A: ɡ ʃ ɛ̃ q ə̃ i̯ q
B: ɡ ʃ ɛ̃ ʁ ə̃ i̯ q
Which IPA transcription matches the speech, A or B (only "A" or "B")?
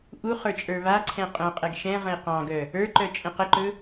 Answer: B